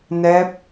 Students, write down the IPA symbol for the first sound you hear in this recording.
n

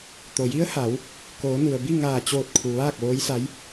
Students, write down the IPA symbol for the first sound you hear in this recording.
t̪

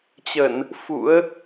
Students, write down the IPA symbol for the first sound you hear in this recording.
t͡ɕ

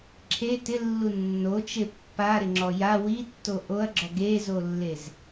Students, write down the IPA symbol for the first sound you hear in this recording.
ǁʰ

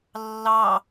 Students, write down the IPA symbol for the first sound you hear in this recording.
lː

